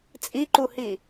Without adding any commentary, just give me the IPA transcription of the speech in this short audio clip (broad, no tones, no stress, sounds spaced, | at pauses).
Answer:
t͡sʼ i ǃ u h i